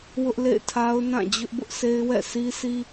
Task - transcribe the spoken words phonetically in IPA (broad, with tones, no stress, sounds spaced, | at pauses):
w ʊ˦ ʔ l ḛ˦˨ ɪ̯ tʰ a˦ ʊ̯ n ã˦˨ d͡ʑ ʊ˦ ʔ b ʊ˦ ʔ sʰ e˦ ɪ̯ w ɛ̰˦˨ s i˦ s i˦